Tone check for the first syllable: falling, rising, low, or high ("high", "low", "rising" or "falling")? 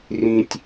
high